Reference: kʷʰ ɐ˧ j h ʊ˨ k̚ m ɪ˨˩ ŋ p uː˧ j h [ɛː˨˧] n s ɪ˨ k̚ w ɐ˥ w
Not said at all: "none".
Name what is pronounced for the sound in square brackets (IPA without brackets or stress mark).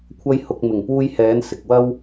ɛː˨˧